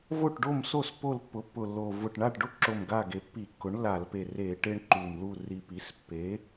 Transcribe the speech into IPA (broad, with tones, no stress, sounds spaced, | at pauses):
v o˦˨ ʈ ɖ o˦˨ m s o˦˨ s p o˦˨ l pː ʊ˩˥ pː ʊ˨˩ lː o˨˩ v ʊ˨˩ ʈ ɳ a˦˨ ʈ ɖ ʊ˦ ǁ o˨˩ m ɡ a˦˨ ɡ e˨˩ pː i˧˩˧ kː ʊ˩˥ ɳ lː a˧˩˧ l p e˨˩ r e˧˩˧ ʈ e˦ ɳ ǃ u˨˩ m l u˦˨ r i˨˩ p i˩˥ s pː e˩˥